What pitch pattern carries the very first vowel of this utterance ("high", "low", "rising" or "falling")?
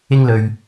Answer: high